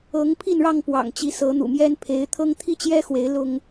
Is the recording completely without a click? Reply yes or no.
yes